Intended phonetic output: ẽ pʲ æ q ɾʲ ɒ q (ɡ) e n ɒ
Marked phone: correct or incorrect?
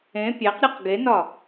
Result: correct